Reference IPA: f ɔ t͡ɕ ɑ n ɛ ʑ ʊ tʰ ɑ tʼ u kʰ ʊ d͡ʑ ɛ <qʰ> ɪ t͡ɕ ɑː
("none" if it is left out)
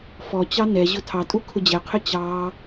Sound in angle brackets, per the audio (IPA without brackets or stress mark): qʰ